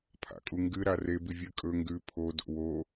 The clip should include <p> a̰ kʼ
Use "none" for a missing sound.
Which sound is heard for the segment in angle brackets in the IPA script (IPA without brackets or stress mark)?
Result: pʰ